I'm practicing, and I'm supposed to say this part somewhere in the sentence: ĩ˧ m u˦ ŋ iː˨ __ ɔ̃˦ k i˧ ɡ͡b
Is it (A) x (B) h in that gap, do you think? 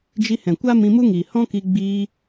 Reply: B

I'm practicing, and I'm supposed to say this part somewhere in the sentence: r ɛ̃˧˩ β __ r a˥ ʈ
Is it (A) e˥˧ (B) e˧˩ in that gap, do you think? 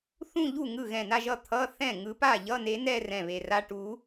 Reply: B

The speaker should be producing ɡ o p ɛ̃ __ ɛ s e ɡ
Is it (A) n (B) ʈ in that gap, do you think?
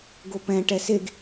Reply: B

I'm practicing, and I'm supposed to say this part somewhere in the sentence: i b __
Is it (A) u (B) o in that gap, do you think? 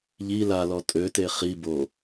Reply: B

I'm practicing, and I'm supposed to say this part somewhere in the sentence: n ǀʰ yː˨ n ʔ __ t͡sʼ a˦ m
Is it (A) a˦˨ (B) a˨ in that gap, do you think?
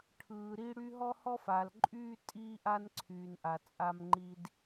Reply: B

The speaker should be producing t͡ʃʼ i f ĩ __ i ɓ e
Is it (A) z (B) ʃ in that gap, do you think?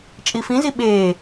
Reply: A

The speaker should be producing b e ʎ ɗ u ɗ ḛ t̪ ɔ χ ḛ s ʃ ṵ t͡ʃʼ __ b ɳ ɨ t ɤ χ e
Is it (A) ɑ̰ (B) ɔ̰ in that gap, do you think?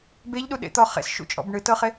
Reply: B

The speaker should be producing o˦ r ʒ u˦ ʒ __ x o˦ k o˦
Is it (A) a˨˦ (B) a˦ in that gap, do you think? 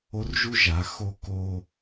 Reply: A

